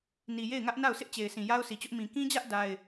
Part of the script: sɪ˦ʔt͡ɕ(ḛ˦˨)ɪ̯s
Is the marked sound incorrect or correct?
incorrect